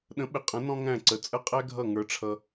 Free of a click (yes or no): no